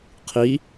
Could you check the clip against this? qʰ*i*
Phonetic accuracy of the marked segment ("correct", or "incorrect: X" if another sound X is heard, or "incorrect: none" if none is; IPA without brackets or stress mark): correct